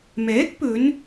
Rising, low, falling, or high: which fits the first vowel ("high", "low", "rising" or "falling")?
rising